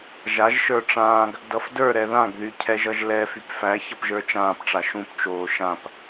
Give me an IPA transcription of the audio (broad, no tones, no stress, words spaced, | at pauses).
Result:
ʒaʒʃə˞ ʈ͡ʂãːɡ | dʌfdə˞ɾɛ ðãɡðy cʰɛʒʌʒlɛ fypfæ çʌpʒə˞t͡ʃãːpʈ͡ʂa ʃũpt͡ʃoː ʃãp